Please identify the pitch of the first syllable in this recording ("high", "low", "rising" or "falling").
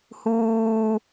low